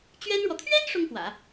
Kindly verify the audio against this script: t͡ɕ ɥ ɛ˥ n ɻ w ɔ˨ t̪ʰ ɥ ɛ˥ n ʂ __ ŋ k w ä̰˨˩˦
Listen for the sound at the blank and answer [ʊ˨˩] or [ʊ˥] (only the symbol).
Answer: ʊ˥